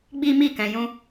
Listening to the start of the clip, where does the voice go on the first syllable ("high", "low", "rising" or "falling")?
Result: high